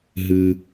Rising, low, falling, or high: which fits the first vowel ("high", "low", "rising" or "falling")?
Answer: low